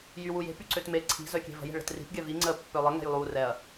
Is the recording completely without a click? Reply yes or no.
no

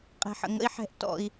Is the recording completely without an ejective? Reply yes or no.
no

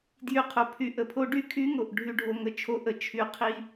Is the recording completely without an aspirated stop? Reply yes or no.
no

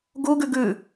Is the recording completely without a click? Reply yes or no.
yes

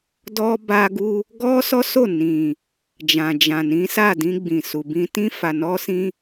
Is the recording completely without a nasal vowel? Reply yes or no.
no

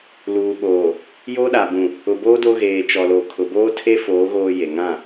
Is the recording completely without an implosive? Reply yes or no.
no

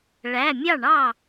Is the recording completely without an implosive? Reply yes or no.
yes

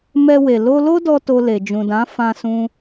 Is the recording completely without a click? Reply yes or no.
yes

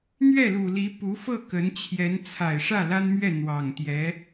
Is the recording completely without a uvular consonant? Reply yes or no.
yes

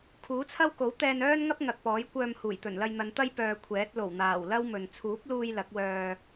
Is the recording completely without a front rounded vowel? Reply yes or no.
no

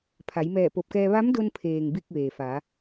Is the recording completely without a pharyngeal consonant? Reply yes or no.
yes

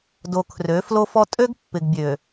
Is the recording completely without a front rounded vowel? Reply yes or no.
no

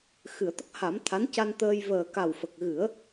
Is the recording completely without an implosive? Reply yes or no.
yes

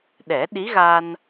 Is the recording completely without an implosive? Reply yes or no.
no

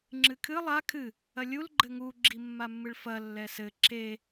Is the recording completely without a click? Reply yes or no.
no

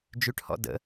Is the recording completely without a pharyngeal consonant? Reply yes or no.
yes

